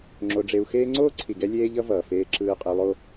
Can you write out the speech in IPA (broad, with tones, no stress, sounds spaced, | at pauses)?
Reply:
ŋ͡ǁ o˧ ɖ͡ʐ e˧ u̯ x eː˦ ŋ͡ǀ oː˦ ǀʰ i˨ ɡ ɛ˧ lʲ eː˦ ʎ ʌ˦ v ʌː˨ f eː˧ ǁ ɯː˧ qʼ e˧ lˠ o˦